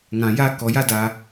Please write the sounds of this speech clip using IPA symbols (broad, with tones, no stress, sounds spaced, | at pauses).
ŋ ã˨ j ä˦ k ɔ˨ j ä˦˨ d ä˨